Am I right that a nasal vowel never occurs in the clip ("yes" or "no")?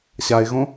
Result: no